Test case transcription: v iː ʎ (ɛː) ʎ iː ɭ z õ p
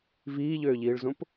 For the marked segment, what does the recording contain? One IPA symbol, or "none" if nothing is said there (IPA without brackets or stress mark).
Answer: øː